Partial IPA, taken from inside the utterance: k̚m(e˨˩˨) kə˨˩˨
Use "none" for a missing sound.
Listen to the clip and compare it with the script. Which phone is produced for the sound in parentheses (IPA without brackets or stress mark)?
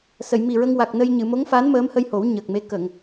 e˧˥